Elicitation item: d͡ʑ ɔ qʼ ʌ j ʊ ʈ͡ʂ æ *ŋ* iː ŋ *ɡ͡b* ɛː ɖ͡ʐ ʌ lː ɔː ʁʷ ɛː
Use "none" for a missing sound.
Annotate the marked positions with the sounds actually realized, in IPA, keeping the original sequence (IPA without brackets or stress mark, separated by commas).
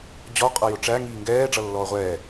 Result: ŋ, ɡ